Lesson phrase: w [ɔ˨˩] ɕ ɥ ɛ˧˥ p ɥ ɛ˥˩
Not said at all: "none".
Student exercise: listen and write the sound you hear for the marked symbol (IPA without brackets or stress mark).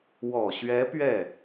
ɔ˨˩